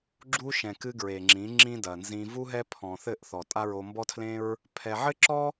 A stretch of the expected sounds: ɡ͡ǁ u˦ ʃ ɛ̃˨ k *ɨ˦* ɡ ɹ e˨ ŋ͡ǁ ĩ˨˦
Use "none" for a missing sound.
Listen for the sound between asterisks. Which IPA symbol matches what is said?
ɨ˦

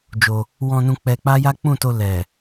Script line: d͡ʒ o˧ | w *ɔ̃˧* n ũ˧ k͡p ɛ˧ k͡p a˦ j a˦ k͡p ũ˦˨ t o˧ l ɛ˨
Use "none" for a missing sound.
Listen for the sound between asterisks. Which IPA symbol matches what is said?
ɔ̃˧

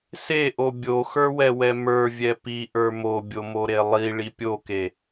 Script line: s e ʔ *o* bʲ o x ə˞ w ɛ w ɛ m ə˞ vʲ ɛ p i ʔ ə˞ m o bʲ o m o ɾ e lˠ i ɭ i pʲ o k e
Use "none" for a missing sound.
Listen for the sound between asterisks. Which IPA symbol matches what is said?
o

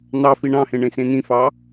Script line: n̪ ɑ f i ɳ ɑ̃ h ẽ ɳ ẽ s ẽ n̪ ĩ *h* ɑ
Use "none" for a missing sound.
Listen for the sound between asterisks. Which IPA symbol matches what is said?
f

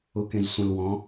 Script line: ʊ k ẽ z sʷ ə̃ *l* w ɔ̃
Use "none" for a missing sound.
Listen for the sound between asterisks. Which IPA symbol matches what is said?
l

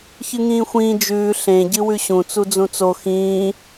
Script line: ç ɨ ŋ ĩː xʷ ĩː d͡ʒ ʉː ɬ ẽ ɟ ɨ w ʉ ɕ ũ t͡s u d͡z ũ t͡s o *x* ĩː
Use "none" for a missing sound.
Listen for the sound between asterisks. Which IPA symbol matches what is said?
x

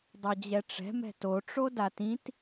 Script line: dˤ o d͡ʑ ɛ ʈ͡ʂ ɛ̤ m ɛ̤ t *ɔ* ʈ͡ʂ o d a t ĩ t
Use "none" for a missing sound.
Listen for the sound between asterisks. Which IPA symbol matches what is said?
o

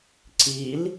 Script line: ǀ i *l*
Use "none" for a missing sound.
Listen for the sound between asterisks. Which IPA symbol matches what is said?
l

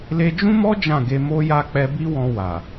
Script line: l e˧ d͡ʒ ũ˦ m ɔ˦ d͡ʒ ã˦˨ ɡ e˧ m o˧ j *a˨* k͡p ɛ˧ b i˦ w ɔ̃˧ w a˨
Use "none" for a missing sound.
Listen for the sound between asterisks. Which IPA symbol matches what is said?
a˧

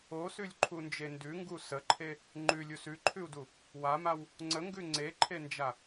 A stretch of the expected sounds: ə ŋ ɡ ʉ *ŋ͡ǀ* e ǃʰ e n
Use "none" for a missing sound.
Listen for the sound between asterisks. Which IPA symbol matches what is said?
ŋ͡ǀ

